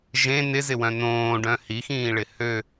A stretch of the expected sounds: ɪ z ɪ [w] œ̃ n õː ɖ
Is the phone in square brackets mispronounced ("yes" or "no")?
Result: no